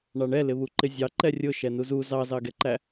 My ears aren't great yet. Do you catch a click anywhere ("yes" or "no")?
yes